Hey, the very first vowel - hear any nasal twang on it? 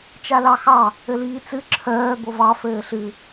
no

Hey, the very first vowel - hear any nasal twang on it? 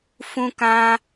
yes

